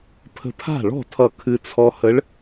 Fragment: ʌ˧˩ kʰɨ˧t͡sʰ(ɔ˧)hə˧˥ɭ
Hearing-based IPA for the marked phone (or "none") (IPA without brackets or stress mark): ɔ˧